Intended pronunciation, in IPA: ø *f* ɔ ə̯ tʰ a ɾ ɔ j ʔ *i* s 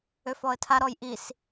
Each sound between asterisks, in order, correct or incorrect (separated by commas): correct, correct